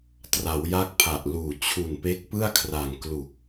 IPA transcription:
tra˩˦wja˦˥k̚pʰa˨˩ʔluː˨˩ t͡ɕʰu˨˩npe˦˥k̚pɯ˥˩a̯kʰra˨˩ŋ klu˨˩k̚

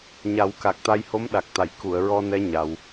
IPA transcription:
ɲa˨˩˦wka˨˩k̚t̪a˧jho˧˥m ɗa˨˩k̚t̪a˨˩˨j ku˨˩˨ə̯ɹɔ˧nɛ˧˥ ɲa˧w

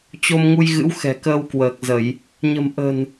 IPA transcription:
t͡ɕo˧mŋu˧jɣɨ̰˧˥w xɛ̤˨˩kəː˧wkwəː˨˩k̚zə˧˩˨j | ɲə̤˨˩mʔə̤˨˩n

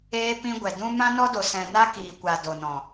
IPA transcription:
eː˧pĩ˧ ɡʷɛ˨dũ˦ mã˦nɔ˦do˨ sɛ̃˨ na˦kiː˨kʷa˨ do˨nɔ̃˨

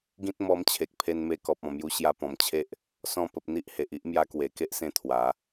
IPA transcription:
ɡĩ˦t̚mɔ˧mt͡ɕʰe˨k̚ pʰe˧nme˧kɔ˨p̚ ɔ̃˨˩mju˧ ɕja˧ pɔ̃˨˩mt͡ɕʰe˦ʔ | sɔ̃˧pə˨p̚ n̪i˦ʔhe˨ʔi˦ʔ mja˧kwe˨˩ke˦ʔsẽ˧ t̪ʰwa˨˦

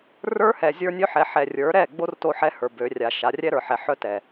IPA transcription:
rə˞˦hɛ˨ zʲə˞˦nʲø˦ħɛ˨˦ ħɛ˨rʲə˞˨˦ɾɛ˦˨ɡ͡bo˦r to˦ħɛ˦ hə˞˨bø˨˦rʲa˨ʃa˨˦ rʲɛ˦ɾə˞˨ħɛ˨ħœ˦ tɛ˨

